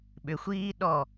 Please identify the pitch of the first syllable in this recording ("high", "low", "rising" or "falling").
low